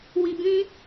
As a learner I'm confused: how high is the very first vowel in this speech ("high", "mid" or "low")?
high